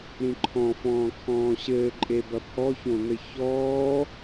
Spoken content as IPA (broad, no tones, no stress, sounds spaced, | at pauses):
ɾ ĩ ǃʰ ɔ̃ f ɔ̃ː kʰ ɔ̃ː ɕ ɘː ǃʼ e b ɐ pʰ ɔ ç õ n̪ ɘ ç ɔː